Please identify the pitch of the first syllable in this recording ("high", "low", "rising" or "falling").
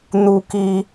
high